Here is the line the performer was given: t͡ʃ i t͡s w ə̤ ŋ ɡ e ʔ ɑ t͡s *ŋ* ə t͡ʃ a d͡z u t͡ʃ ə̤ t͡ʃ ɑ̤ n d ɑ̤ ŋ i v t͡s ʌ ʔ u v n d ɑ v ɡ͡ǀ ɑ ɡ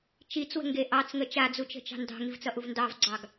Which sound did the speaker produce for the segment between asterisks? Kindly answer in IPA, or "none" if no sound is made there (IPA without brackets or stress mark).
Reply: ŋ